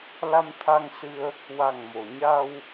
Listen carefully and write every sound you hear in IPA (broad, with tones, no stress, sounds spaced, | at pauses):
l a˧ m t̪ʰ a˧ ŋ s ɨ˧ ə̯ | w a˨˩ ŋ m o˨˩˨ ɲ a˧ w